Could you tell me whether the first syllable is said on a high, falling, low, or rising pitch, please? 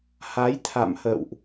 rising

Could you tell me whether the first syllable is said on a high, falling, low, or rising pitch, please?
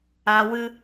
low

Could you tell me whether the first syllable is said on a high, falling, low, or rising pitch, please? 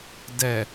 low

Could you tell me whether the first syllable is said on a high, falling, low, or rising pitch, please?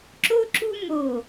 high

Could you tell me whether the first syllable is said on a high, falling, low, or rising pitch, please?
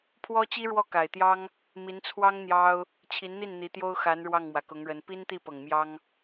high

